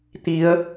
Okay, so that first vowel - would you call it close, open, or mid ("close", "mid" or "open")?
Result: close